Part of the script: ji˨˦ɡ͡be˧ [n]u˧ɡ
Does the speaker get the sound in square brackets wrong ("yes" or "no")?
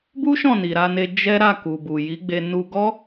no